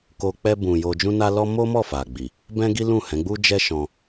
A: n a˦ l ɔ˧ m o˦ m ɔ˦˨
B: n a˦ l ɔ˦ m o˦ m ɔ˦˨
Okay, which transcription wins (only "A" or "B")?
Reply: B